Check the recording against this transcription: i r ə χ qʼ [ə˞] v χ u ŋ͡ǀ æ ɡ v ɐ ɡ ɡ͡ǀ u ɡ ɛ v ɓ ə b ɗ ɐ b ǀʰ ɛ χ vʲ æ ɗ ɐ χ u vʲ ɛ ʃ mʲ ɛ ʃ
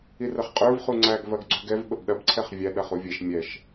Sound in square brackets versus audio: correct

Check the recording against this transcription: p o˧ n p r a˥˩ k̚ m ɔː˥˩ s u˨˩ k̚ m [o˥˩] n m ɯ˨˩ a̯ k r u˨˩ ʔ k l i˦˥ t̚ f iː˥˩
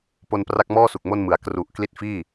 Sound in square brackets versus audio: correct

